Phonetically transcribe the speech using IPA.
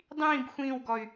dˤ ĩː b xʷ ĩː w ɡ ɔ y̯

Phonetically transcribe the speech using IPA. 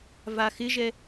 v a x ɪ ʒ ɛ

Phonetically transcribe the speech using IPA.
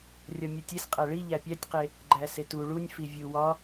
rʲ ɒ mʲ o tʲ e s qʼ æ ɭ i ʎ æ pʲ æ tʲ q e | ɡ͡ǃ æ s e t u ɭ u nʲ f i vʲ u w ɒ

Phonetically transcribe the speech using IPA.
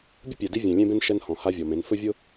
bʲ ʊ˦ pʲ ɛ˨ d i˦ vʲ ɛ̃˨ lʲ ẽ˦ b ẽ˦ n ʃ ɛ˦ n h ɔ̃˨ h a˦ vʲ ɔ˨ m ẽ˨˦ n f ɵ˦ vʲ ʊ˦

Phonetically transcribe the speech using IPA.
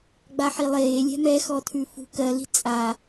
ɡ͡b a ħ i lˠ eː lʲ ɛ̤ m ɛ x ɔ tʰ ʉ f ṳ k ɜ l i̤ t͡sʼ a

